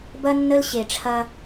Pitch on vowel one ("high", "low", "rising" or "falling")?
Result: high